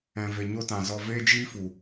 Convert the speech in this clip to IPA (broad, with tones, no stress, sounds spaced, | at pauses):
ɛ̃˨ v e˨ ɲ o˧ t ã˨ z ɔ˨ v eː˦ d͡ʒ iː˦ f u˨